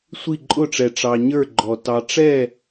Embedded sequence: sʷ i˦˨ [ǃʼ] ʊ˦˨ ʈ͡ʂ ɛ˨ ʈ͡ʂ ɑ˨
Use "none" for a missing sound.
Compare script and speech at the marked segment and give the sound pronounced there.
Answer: ǃʼ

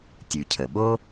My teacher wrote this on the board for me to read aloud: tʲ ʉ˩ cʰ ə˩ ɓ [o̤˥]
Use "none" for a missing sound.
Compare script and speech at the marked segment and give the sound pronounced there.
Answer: o˥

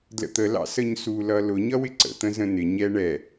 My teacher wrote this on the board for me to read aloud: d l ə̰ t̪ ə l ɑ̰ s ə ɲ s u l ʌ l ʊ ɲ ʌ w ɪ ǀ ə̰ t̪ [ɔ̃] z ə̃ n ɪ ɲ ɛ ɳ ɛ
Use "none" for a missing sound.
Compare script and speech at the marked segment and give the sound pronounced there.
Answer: ə̃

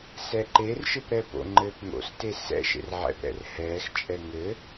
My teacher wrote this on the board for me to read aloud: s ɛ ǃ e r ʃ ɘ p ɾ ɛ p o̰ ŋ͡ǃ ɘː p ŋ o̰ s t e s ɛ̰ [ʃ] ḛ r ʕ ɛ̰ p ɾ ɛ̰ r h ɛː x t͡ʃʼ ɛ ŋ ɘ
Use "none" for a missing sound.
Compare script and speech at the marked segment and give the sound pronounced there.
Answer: ʃ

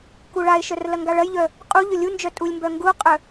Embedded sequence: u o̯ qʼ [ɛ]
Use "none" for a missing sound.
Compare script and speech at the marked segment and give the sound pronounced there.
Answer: œ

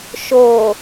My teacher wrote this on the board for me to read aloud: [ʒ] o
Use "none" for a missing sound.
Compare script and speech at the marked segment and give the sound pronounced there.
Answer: ʃ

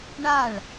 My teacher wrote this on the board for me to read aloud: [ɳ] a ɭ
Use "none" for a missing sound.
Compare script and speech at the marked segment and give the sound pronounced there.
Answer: ɳ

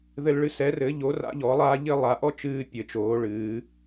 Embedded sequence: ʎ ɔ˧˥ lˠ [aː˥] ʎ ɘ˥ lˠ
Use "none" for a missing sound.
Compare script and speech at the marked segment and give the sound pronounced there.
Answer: aː˥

